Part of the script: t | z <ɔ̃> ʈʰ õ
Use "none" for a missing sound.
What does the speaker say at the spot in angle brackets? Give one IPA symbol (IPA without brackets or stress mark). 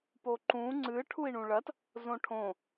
õ